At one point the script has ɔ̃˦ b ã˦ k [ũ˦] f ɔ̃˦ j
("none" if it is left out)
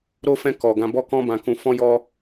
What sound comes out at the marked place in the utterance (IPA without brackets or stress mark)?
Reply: ũ˦